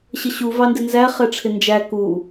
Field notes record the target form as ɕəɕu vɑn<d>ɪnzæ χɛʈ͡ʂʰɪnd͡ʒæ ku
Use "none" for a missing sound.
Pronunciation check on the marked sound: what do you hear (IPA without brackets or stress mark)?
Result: d